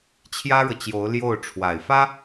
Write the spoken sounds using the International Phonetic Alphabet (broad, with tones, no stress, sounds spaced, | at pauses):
t͡ɕʰ j ä˥ ɻ ɤ˨ t͡ɕ j o˧˥ ʊ̯ l j o˥˩ ʊ̯ ʈ͡ʂʰ w a˨˩ ɪ̯ f ä˥